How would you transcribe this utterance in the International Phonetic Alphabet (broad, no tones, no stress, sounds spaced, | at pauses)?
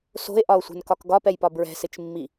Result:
s o̤ e̯ ʔ ɒ o̯ sʷ ɛ̤ n k ɒ k ɡ ɒ p ɛ j p ɒ b ɹ ɛ̤ s ɪ t͡ʃ mː i